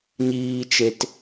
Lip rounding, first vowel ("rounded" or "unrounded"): unrounded